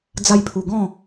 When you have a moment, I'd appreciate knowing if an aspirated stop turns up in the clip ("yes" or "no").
yes